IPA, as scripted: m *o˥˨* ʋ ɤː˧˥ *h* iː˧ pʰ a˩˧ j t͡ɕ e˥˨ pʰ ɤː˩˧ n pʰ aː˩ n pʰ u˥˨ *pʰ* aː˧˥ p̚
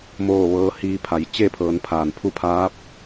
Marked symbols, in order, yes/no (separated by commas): no, yes, yes